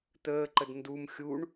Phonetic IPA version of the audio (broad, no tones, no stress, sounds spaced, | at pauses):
t̪ əː ǃ ə d n d u m xʲ u ɳ